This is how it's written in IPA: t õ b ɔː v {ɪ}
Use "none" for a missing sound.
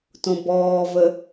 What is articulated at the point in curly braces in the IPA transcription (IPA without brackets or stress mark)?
ə